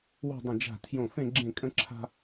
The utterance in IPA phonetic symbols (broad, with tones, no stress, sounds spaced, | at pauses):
w o̤˥˧ dˤ ə̃˧˩ d͡ʒ a̤˧˩ tʰ j õ˧˩ f ẽ˥˧ ɡ͡ǁ ẽ˥˧ kʼ ə̃˥ ǁʰ a̤˥